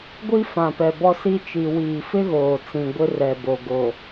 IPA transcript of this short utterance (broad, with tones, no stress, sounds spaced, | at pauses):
ɡʷ i˦ f ã˨ p ɛ˨ b ɔ˦ s i˦ t͡ʃ i˨ w iː˨ f ɪ˦ ɣ oː˨ t͡s ĩ˨ ɡʷ ɪ˦ r ɛ˨ b o˨ ɡ o˨